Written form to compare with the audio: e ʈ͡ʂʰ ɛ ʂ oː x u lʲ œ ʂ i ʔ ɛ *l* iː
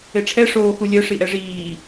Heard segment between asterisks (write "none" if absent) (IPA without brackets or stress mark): ʐ